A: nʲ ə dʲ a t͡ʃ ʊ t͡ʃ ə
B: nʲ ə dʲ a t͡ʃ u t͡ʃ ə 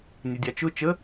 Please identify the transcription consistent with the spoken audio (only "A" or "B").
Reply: A